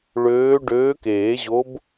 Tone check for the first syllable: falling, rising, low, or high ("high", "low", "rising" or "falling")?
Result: rising